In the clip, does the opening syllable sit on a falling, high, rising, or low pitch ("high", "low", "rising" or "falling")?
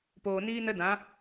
low